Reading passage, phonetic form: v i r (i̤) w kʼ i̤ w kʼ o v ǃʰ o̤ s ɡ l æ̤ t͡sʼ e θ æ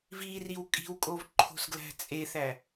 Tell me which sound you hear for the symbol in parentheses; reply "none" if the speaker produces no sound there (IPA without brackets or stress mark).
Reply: i